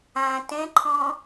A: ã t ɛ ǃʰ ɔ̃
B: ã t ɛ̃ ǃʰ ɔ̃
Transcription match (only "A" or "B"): B